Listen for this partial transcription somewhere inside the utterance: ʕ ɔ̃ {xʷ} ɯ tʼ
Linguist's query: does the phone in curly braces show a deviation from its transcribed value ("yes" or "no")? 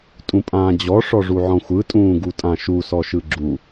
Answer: no